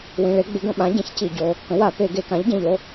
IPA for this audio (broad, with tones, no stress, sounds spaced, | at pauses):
w ĩ˩˧˩ ɭ e˩˥ ɡ͡b ɪ˩˥ ɡ ə̃˧˩˧ ɓ ã˩˥ ɟ ĩ˩˥ ç c i˧˩˧ ɟ o˩˧˩ | k ə̃˩˥ w a˧˩˧ p e˧˩˧ ɡ e˧˩˧ k ã˩˥ ʎ ɟ ə̃˩˧˩ ʎ o˩˧˩